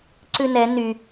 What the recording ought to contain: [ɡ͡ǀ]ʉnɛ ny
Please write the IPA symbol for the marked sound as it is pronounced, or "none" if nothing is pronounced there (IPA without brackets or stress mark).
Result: ǀ